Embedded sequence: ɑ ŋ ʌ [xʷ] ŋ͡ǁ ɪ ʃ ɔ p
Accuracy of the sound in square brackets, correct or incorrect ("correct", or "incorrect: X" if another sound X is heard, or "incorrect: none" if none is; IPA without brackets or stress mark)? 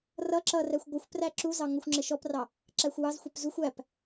correct